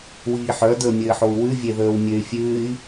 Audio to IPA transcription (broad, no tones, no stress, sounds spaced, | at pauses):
w iː ħ œ d əː mʲ ɘː ħ o u̯ w ʉ vʲ e ð əː w mʲ ø y̯ fʲ ʉː i̯